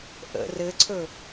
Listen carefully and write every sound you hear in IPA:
ʔə̰r ɘǀʰɵ

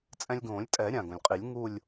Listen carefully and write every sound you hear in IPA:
t͡sʼɛ̃˧lʲɡõː˨˩˦lʲtʼɛ˨˩˦ ɾʲã˩ɡõ˩lʲqʼi˨˩˦lʲ ŋu˥˧lʲ

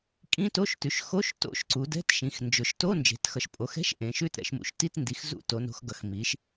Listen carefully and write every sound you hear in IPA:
kʼĩ˧˥˧to˧˥˧ʃtʉ˩˧ʃ xo˧˥˧ʃto̰˧˥˧ʃǀu˩˧ dɛ̤˧˥˧tʃĩ˩˧x nd͡ʒʊ˩˧ʃto˧˥˧ nd͡ʒe̤˩˧txʌ˩˧ʃpʼo˩˧xɛ̤˧˥˧ʃ ʔẽ˩˧ʃʉ˧˥˧tɾɛ̰˩˧ʃ mṵ˩˧ʃ ti˧˥˧tndi˩˧x zṵ˧˥˧to˩˧no̤˩˧xɡʌ˩˧x mi˩˧ʃ

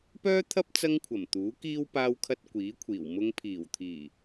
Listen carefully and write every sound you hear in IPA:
pœː˥t̪ʰɐ˥p̚ t͡sɐ˥ŋkʷʰɐ˨˩mt̪uː˨˥kiː˥w paː˥wkʰɐ˥t̚ kʷiː˨˥kʷʰiː˨˩w mʊ˧ŋpʰiː˨˩wt̪ʰiː˨˩

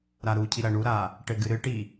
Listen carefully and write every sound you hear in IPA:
ɾaɾucʰi ɾɐɳuɾa | ʈɘɡɨɾɨʈi

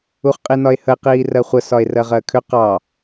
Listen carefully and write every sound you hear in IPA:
uχqʼinɒe̯həe̯ qiːrɜχʷə sɒe̯rɜʁɜkʰʏ qɑ

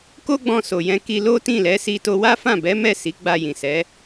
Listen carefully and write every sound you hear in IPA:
ko˦ɡ͡bɔ̃˧ so˨jɛ̃˧ ki˧lo˦tĩ˦˨lɛ˨˦ si˧to˧wa˦fã˦˨ bɛ˨˦mɛ˦˨ si˨˦ɡ͡ba˧jĩ˨sɛ˨˦

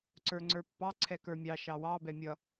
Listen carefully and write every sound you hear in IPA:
ǀə˞ŋ͡ǀə˞pːɑ ǀʰɛkə˞mʲɑ ʃɑwɑ bɛmʲʌ

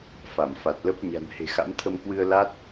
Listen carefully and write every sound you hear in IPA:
fa˧˩m fa˨˩t̚lə˦˥p̚ ɲa̤˨˩nhe̤˨˩xa̰˧˥m t̪ʰə˧mkwɨ˧ə̯la˦˥t̚

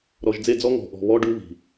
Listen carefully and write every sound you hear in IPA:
ɾɔ˨ʒd͡ze˦˨d͡zɔ˦ ŋɔ̤˨ʔɔ̤˨βɔ˦ ɖu˦βi̤˨

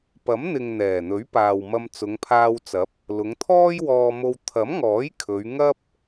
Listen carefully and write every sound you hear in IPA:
pɐ˨˥mn̪ɪ˨ŋ n̪ɛː˨˩n̪ɵ˨˥ɥ paː˨wmɐ˧m t͡sʊ˨˧ŋpʰaː˧wt͡sɐ˨˥p̚ | lʊ˨˧ŋt̪ʰɔː˥jwɔː˧mo˧w t̪ʰɐ˨˥mŋɔː˨˥j kʰɵ˨˧ɥ ŋɐ˥p̚

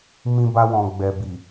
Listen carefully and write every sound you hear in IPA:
mĩ˧ba˧wɔ̃˨ ɡ͡bɛ˨bi˨

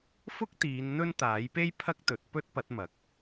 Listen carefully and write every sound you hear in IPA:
fʊ˥k̚t̪iː˨˧n n̪ɵ˥nt̪aː˨˥jpe˥j pʰɐ˥k̚t̪ɵ˨˥t̚pɵ˥t̚ pɐ˨˥t̚mɐ˨˥k̚

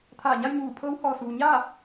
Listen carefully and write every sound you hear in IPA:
t̪ʰaː˧˩ɲa˥˨jɲuː˧˩pʰɤː˧˥w hɔː˩suː˩ ɲaː˥˨

